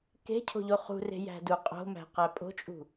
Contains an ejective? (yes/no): yes